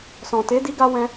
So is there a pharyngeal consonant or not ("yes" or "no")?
no